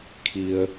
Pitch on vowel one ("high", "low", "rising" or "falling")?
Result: low